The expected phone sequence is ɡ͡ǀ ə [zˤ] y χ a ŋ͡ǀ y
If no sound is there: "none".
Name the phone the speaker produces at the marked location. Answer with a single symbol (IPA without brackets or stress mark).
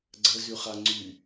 z